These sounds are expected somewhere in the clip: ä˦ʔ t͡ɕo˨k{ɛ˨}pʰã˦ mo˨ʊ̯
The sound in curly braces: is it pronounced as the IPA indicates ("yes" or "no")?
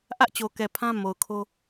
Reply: yes